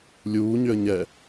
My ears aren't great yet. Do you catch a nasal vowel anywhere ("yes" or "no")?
no